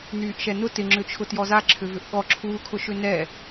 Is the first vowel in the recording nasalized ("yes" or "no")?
no